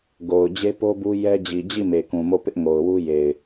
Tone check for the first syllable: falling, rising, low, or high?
low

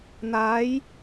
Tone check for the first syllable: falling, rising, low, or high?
rising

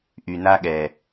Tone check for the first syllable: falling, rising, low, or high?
low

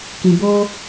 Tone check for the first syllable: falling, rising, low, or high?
low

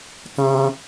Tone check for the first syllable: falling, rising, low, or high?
high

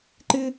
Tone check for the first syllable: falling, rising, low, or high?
high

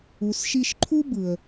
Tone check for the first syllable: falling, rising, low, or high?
low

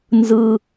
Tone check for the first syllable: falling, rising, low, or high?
low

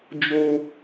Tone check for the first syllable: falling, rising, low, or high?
high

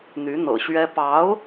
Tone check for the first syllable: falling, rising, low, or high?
rising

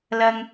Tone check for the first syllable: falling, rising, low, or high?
high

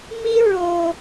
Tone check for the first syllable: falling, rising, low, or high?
high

